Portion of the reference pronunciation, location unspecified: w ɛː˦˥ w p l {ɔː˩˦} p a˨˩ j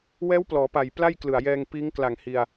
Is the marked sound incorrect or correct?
correct